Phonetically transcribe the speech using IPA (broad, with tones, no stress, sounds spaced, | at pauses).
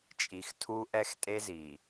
t͡ʃʼ i˨ x tʰ u˦ ʔ ɛ˦ x tʼ e˦ z i˨